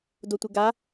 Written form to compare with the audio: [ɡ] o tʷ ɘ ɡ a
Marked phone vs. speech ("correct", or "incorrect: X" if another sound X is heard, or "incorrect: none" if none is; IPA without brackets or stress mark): incorrect: d